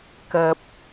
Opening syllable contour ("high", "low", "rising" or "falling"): low